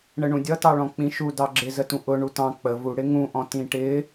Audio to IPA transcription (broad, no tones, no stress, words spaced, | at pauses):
ɳəɳũdʲʌtɑ ɭɔ̃k͡pĩʃu dɑɡ͡ǁɪzətũ ʔʊ ɳutɑ̃ k͡pə vu ɽɪŋũʔɔ̃ tĩʈɪ